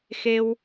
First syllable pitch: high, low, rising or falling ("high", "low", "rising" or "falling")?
high